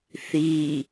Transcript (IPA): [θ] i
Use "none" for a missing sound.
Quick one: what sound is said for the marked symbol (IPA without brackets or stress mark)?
θ